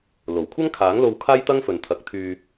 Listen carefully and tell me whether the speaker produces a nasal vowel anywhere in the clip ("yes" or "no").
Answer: no